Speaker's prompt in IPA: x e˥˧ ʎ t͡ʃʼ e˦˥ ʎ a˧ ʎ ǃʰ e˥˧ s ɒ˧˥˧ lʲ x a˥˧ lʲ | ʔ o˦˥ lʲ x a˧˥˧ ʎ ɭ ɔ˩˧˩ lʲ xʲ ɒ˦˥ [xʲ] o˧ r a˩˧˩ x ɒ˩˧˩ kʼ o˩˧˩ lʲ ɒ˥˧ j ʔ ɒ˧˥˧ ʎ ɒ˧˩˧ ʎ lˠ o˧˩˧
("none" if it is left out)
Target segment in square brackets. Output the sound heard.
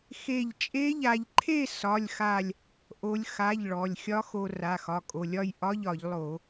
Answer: x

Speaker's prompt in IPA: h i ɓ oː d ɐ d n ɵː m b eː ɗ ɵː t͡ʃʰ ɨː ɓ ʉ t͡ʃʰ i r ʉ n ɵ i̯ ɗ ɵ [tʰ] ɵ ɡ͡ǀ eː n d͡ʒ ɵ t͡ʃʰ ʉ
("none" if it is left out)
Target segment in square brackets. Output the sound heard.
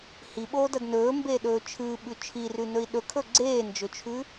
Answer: kʰ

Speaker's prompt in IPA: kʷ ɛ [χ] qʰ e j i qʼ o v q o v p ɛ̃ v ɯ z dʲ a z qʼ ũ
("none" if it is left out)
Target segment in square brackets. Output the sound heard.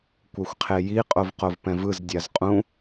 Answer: xʷ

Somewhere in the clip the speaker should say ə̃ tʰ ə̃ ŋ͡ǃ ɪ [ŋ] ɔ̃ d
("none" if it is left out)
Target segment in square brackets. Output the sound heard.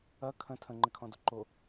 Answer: kʰ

